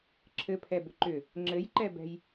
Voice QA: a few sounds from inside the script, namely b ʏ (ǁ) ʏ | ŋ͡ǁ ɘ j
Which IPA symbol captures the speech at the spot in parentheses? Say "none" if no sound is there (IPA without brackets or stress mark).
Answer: ǃ